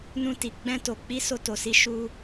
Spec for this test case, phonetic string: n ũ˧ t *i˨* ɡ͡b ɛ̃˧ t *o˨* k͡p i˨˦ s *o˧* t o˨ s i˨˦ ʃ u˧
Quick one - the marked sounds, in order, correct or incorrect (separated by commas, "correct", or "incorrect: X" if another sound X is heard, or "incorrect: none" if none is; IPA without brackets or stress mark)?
correct, correct, correct